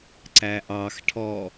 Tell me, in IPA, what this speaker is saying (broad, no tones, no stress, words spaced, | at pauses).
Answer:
ǀæʔɑxʈʰɔ